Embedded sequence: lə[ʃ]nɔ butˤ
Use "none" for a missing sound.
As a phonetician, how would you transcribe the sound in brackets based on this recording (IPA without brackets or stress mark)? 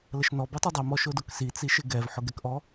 ʃ